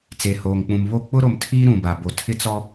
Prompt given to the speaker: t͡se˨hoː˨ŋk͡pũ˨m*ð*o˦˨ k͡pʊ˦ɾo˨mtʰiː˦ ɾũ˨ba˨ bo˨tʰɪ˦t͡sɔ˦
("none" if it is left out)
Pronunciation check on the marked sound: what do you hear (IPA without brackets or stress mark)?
β